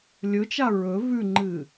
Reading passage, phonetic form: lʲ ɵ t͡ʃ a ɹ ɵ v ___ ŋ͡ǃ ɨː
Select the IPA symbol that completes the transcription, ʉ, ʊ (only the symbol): ʉ